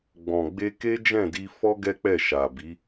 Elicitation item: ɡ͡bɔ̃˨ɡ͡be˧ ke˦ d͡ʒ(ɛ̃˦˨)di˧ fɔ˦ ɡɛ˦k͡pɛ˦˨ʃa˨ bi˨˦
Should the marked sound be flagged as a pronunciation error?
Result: no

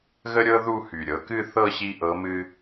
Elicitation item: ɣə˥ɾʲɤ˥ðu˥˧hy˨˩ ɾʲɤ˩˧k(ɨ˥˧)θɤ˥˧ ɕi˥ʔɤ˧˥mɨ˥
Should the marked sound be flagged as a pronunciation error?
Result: no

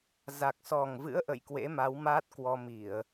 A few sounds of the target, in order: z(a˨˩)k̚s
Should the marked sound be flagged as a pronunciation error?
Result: no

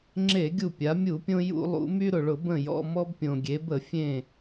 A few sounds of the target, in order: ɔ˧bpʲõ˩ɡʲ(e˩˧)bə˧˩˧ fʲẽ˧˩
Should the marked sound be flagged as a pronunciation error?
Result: no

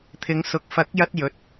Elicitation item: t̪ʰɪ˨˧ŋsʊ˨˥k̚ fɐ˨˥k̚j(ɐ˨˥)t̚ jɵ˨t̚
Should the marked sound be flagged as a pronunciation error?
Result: yes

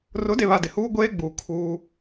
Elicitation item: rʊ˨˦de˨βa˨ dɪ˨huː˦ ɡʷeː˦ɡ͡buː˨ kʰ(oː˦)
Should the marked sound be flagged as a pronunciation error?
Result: yes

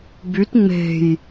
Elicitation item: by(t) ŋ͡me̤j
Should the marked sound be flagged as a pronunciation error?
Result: no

